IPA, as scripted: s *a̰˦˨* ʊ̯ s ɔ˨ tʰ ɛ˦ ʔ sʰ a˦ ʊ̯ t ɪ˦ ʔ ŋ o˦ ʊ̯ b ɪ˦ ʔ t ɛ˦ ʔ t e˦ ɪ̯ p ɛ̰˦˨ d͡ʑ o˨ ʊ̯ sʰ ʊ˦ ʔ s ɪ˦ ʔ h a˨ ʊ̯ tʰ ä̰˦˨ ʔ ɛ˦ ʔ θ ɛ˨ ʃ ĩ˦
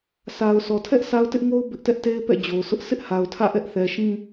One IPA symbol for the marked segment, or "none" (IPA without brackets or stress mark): a˨